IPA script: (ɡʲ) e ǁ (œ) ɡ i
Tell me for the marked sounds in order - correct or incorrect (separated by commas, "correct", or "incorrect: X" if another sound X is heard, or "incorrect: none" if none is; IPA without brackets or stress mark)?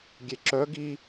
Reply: correct, correct